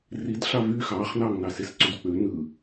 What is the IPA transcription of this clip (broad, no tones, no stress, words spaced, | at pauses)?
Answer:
rid ɬɑvy xɑːχnɑːŋnɑses ǀydk͡pø nɯ